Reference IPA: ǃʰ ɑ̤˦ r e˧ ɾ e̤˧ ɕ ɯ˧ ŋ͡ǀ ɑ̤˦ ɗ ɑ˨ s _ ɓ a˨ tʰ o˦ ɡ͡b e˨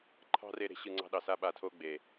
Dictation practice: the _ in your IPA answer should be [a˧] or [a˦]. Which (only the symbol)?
a˧